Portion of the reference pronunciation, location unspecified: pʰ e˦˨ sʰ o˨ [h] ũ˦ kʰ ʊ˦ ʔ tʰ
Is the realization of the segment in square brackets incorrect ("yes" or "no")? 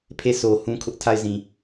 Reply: no